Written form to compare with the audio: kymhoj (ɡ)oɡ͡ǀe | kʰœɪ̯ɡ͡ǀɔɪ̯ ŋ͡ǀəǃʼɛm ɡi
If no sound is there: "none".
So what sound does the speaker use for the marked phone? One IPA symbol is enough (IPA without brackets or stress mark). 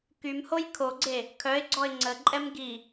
kʰ